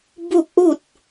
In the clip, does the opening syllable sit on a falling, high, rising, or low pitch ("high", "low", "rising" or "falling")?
falling